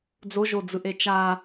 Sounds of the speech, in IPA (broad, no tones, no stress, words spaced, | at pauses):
d͡zoʒod͡zɯʔe t͡ʃa